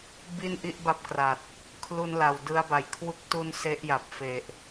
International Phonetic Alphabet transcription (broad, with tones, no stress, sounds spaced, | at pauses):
b i˥˩ n ʔ i˥˩ ʔ b a˦˥ p̚ k r a˨˩ t̚ | kʰ l u˧ n l a˨˩ w d ɯ˧ a̯ b a˨˩ j kʰ w u˦˥ k̚ t u˦˥ n s e˦˥ ʔ j a˨˩ p̚ f e˨˩ ʔ